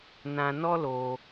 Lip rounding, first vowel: unrounded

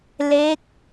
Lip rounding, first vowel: unrounded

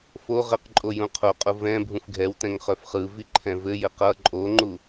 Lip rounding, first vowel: rounded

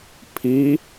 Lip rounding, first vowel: unrounded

